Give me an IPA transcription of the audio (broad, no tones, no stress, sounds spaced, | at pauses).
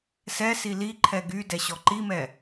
s ɛ s i l i ǃʰ ɛ ɡ y d ɛ ɕ ɔ ǃ i m ɛ